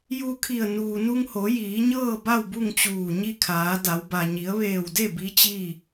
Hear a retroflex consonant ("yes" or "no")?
no